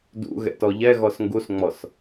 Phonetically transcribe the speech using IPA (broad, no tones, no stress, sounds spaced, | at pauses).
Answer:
d ṵ ɣ ɛ̰ t ɔ ʎ ɛ ɣ ɔ s ŋ ɡ u s ŋ͡m ɔ s